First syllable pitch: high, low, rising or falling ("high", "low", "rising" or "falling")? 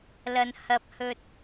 low